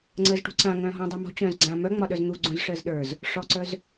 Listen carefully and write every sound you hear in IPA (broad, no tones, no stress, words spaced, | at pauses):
ŋ͡ǀəːzʈṳǀã ŋœ̃ːɦɔ̃ dˤəːmɔ̤ t͡ɕœ̃ːzɡ͡ǀã mœŋ͡mɒɗœz n̪uɡ͡ǀũz ʂəːzɗə˞z | ʂɔǀœz